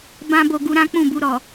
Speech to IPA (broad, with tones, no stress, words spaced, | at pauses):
bã˦bo˧ ɡu˧ɾã˦ k͡pũ˦˨bu˧ɾɔ˨